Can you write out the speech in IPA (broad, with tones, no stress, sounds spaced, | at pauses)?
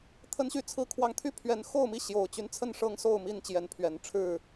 t̪ʰ ə˦ n ɕ y˥˨ t͡sʰ ɹ̩˥˨ kʰ w ɑ˦ ŋ t̪ʰ y˦ pʰ ɥ ɛ˨˦ n x o˥˨ ʊ̯ m i˥˨ ɕ j o˨˩ ʊ̯ t͡ɕ y˦ n t͡sʰ ə˥˨ n ʂ ɤ˦ ŋ s o˥˨ ʊ̯ m i˥˨ n t͡ɕ j ɛ˨˦ n pʰ ɥ ɛ˨˩ n ʈ͡ʂʰ ɻ̩˥˨